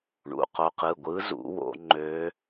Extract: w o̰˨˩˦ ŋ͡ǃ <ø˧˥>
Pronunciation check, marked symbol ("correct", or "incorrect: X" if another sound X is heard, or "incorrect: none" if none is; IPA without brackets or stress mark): correct